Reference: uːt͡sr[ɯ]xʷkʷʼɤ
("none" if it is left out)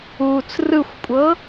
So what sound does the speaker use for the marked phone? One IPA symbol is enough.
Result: ɯ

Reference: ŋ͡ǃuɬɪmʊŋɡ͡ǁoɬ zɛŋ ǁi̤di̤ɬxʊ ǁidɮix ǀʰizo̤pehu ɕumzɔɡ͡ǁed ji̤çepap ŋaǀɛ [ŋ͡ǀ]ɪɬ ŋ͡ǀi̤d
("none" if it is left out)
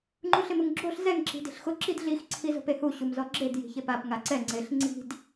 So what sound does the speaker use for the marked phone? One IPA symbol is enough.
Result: ŋ͡ǀ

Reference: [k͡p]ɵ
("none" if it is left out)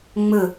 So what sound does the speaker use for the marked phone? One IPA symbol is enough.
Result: ŋ͡m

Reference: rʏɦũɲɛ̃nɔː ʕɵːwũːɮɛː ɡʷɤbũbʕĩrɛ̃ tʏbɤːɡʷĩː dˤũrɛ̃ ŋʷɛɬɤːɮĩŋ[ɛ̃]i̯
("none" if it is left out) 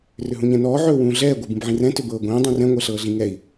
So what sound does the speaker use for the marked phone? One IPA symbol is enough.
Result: ɛ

